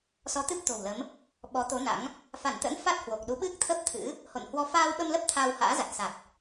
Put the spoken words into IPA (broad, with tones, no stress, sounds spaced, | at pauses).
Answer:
s ɔ˨˦ t̪ ɨ˦˥ p̚ t̪ o̤˨˩ w l ə˨˦ m | ɓ ɔ˨˦ t̪ o˨˦ n a̰˧˥ ŋ | f a˧˩ n t̪ ə̰˧˥ n f a˦˥ t̚ h w o˨˩ k̚ ɗ u˨˦ ɓ ɨ˦˥ k̚ t̪ʰ əː˦˥ p̚ t̪ʰ ɨ̰˧˥ | h o̰˧˨ n h w ɔ˧ f aː˧ w ɓ ə˧ m l ə˦˥ p̚ t̪ʰ aː˧ w h a̰ː˧˥ z a˨˩ t̚ s a˨˩ t̚